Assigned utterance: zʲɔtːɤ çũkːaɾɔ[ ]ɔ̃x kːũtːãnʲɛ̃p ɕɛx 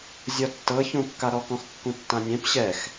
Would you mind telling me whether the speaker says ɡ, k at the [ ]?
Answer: k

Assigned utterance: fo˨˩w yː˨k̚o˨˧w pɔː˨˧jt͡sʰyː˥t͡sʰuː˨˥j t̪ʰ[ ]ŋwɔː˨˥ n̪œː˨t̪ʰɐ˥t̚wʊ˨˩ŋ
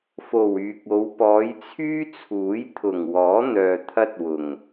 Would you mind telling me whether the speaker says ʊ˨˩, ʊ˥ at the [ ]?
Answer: ʊ˨˩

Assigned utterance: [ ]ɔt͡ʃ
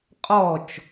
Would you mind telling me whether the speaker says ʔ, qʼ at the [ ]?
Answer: qʼ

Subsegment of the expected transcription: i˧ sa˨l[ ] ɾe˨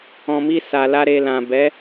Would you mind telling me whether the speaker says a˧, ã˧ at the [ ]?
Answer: a˧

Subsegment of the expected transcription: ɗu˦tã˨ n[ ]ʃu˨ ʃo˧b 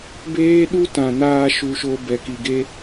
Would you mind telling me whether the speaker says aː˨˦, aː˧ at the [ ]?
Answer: aː˧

